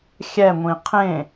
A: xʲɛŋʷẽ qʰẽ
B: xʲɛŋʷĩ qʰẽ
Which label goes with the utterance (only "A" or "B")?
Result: B